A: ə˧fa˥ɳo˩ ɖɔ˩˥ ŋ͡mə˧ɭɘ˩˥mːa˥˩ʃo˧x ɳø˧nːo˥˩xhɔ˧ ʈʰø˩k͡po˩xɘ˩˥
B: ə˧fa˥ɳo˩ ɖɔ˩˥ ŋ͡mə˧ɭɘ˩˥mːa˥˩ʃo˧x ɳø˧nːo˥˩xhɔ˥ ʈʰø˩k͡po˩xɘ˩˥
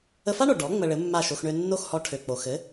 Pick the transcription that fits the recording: A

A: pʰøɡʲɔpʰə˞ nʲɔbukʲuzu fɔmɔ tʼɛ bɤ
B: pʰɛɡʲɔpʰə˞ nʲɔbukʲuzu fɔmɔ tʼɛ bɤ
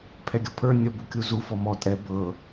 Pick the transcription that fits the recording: B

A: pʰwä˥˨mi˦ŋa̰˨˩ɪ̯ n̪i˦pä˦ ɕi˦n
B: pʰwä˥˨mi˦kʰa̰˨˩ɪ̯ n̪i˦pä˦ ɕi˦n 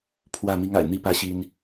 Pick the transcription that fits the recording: A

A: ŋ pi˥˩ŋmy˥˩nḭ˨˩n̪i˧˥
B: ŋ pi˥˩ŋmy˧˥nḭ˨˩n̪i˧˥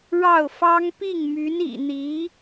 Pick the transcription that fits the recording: B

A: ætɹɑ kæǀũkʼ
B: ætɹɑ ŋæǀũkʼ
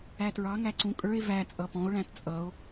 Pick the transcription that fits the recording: B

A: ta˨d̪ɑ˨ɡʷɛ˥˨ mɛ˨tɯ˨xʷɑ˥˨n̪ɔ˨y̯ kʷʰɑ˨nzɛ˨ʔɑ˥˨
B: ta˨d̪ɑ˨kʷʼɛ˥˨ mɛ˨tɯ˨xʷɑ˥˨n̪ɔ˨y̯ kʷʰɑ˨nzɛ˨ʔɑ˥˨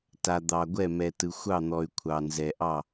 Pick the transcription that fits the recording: A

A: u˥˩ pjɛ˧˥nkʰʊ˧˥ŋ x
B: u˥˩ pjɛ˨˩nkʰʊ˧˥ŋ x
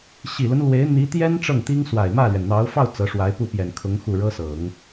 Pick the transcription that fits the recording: B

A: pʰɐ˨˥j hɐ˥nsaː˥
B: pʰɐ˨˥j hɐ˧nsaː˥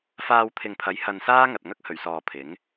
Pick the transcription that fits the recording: B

